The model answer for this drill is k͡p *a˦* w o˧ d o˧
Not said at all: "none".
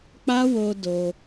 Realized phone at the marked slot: a˦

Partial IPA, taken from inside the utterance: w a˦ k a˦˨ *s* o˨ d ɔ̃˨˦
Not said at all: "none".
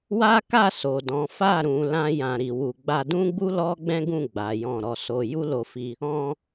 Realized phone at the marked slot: s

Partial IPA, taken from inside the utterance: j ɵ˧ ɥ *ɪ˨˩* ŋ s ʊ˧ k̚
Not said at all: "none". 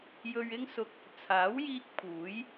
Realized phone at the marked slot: ɪ˥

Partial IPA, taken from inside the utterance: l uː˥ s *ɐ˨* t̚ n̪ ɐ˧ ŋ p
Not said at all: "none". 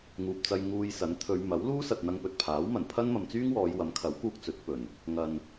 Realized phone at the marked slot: ɐ˨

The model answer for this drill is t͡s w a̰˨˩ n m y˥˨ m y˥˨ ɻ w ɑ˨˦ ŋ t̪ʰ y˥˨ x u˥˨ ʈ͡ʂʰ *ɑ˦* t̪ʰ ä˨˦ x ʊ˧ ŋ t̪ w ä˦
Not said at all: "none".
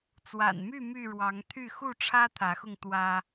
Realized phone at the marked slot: ä˦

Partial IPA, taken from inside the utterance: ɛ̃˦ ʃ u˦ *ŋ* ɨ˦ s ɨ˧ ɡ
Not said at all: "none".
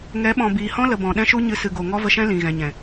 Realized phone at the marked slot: ɲ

